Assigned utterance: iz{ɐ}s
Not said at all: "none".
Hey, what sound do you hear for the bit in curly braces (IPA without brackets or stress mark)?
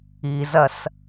ɐ